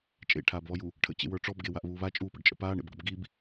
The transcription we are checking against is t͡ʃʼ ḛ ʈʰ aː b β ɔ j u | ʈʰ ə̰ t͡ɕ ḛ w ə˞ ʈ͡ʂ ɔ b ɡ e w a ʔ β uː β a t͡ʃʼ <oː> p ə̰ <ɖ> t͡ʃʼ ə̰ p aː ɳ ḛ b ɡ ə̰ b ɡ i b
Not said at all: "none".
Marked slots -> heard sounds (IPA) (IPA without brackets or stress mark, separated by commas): uː, ɖ